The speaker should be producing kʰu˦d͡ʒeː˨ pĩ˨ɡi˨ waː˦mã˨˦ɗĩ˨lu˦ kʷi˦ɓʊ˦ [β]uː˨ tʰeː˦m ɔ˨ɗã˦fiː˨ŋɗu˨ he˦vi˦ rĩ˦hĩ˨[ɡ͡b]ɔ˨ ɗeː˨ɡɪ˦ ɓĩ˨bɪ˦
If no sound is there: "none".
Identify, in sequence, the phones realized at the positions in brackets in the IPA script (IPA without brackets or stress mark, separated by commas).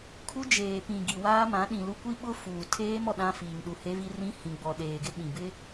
f, ɡ͡b